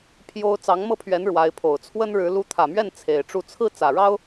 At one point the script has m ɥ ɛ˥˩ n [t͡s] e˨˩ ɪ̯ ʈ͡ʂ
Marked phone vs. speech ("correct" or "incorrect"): incorrect